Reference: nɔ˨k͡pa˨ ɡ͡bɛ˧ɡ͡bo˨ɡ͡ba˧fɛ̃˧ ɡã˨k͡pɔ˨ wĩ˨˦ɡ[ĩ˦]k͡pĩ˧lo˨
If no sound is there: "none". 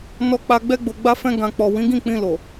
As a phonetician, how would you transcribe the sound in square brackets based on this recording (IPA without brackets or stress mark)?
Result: ĩ˦˨